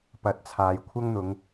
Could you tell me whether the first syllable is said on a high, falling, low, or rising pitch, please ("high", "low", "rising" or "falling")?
rising